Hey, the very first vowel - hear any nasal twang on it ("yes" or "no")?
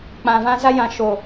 yes